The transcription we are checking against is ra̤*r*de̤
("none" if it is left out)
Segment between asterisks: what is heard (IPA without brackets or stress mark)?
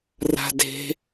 none